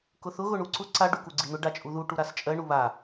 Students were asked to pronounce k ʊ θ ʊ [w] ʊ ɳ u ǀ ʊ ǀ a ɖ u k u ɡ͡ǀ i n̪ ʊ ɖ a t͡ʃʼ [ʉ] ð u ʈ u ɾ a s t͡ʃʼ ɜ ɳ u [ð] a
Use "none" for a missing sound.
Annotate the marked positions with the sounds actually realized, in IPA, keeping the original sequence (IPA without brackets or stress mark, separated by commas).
ɣ, u, β